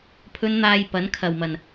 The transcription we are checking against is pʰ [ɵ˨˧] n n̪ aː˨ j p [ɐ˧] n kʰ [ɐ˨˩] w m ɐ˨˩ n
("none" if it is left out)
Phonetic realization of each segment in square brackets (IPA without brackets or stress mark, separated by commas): ɵ˨˧, ɐ˨˥, ɐ˨˩